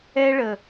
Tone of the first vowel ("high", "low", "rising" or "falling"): high